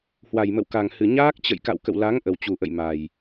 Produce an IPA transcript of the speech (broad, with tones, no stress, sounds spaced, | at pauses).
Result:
h w a˨˩ j m ə̰˧˨ w k a˨˩ ŋ h ɨ˨˩ ɲ aː˦˥ k̚ t͡ɕ ə̰˧˨ j k a̰˧˨ w k ə̰˧˨ w l a˨˦ ŋ ʔ ə˨˩ w t͡ɕ u˨˩ ʔ ə̰˧˨ j m a˨˩ j